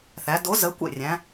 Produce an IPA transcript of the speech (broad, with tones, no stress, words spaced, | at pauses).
θæ˩˧do˨˥ zə˨˥kʷḛ˥˩rʲæ̃˩˧